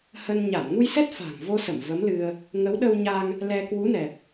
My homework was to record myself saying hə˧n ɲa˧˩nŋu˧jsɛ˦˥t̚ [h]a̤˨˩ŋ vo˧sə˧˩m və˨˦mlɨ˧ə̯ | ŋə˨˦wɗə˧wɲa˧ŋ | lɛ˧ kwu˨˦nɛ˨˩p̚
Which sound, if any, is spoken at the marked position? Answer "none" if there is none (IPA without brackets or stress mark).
f